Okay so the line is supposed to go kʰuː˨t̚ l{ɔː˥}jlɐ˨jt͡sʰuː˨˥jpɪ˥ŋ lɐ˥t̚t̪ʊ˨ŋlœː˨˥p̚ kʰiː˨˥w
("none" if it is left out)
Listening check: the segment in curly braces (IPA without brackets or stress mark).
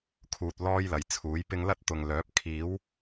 ɔː˥